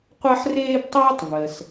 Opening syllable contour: high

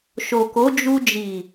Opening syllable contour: low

